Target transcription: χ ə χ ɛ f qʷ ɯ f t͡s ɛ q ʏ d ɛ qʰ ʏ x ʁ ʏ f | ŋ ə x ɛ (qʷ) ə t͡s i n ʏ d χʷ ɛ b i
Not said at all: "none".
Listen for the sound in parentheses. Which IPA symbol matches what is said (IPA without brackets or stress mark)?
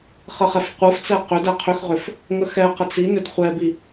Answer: q